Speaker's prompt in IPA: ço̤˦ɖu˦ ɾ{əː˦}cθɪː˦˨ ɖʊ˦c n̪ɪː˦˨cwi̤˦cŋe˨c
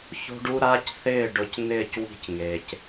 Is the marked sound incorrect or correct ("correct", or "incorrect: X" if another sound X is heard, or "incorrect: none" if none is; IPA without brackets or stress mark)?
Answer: incorrect: aː˦